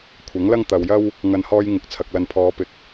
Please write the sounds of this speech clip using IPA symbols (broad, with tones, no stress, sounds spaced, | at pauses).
kʷʰ ɐ˨˥ ŋ l ɐ˥ ŋ t̪ ɐ˨ w j ɐ˥ w | ŋ ɐ˧ n h ɔː˥ j ŋ ɪ˨˥ k̚ t͡sʰ ɐ˨ k̚ l ɐ˨ n pʰ ɔː˨˧ p ɪ˨ k̚